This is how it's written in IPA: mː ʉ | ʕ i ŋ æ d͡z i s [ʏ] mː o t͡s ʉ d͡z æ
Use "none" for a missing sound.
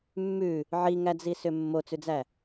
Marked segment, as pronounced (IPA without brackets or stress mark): ʏ